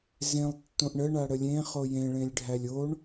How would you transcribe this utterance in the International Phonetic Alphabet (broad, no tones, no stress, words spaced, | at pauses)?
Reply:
zẽlˠ tːõʔɳə ɳaɽəlʲẽ χojẽ ɭẽlʲɖʱælʲoɳ